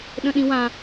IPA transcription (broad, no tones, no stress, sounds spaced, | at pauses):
ɗ ə̃ ɗ ĩ w ã